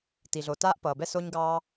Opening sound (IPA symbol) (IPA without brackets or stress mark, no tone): t